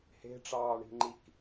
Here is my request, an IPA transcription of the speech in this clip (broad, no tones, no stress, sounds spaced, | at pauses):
h e̤ ʈ͡ʂ ɑː ɳ i̤ ŋ͡ǃ i k